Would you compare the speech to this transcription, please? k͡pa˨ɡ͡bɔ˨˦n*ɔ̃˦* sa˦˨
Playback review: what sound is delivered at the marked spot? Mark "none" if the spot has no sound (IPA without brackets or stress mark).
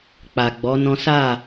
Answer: ɔ̃˦